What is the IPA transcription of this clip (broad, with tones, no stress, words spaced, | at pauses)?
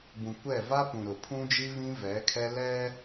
bũ˨kʷɛ˦˨ va˦pũ˨ ɾʊ˨pʰũ˦d͡ʒi˦βĩ˦ vɛ˨˦kʰɛ˦ lɛ˦